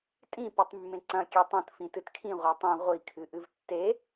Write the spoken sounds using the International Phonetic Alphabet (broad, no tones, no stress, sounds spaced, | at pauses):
tʼ ĩ p ɨ tˤ mː ẽ ǀ ɐ̃ kʲ e tˤ õ t f ĩ t ɨ t kʰ ĩ ʁʷ a tˤ ĩ ʁʷ i kʰ ɨ ʔ ɨ v tː e